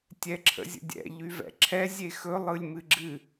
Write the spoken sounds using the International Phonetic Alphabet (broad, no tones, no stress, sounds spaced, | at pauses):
tʲ ɛ ǁʰ ə̰ zʲ ə̰ dʲ ɛ̰ ʎ y v ɛ̰ ǁʰ ɛ zʲ e x ɵ lˠ ɯ lʲ m ɨ ɡ͡ǁ ɨ